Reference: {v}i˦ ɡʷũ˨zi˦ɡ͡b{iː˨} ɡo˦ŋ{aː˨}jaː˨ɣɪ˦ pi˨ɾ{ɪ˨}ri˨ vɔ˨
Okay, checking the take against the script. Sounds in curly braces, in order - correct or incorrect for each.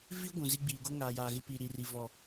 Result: correct, correct, correct, incorrect: i˨

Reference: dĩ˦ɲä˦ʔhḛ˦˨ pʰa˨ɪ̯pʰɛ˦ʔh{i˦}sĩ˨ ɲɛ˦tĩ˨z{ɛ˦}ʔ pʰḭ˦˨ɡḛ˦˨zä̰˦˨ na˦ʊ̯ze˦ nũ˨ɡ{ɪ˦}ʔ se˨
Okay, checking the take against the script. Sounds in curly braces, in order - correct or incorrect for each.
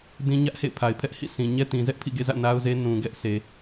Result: incorrect: ḭ˦˨, correct, incorrect: ɛ˦

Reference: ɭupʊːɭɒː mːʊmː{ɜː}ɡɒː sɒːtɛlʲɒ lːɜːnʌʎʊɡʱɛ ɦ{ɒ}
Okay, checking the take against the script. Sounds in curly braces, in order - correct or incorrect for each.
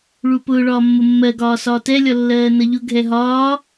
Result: incorrect: ɜ, incorrect: ɒː

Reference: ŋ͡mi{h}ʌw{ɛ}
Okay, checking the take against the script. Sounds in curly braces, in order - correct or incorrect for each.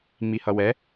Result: correct, correct

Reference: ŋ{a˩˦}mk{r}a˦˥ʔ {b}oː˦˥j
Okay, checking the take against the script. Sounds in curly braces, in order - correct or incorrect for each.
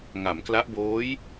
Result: correct, incorrect: l, correct

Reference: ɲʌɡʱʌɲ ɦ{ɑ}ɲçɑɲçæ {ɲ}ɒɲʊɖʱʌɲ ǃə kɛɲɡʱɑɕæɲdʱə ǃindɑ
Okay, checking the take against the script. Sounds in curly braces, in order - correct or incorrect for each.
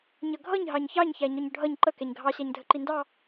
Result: correct, correct

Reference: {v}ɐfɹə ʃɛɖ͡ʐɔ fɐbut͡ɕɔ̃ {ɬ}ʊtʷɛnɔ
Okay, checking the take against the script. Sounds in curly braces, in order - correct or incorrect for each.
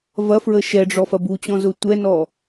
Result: correct, incorrect: z

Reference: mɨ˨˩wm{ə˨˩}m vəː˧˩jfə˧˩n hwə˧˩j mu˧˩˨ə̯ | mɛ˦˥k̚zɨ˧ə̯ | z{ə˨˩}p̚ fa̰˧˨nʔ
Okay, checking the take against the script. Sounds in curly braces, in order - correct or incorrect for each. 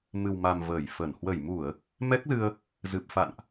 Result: incorrect: a˨˩, incorrect: ɨ˨˩

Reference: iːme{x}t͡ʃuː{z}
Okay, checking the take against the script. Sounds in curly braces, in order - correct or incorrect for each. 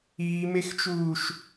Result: correct, incorrect: ʃ

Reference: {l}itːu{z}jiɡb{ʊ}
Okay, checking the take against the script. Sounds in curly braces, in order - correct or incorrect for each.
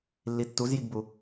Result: incorrect: lː, correct, incorrect: u

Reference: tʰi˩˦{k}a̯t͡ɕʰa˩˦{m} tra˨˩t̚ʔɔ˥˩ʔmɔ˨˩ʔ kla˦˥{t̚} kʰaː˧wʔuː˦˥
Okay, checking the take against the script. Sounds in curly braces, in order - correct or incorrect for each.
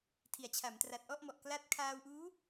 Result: incorrect: none, correct, correct

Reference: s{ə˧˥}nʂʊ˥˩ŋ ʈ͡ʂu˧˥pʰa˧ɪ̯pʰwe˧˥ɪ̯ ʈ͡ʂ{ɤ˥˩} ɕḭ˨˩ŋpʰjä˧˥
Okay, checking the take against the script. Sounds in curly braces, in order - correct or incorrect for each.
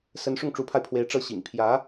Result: correct, correct

